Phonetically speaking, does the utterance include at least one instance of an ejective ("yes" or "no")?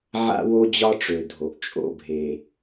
yes